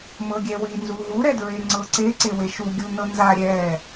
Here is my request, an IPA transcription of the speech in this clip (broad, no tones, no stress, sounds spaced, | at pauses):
m ɤ ɡʲ ɛ w i n z u ɦ u ɾ ɛ d ɹ e ŋ͡ǀ ɤ ǀ e ǀ e w e ʃ u ɡʲ u n ɤ n z a ɾʲ ɛ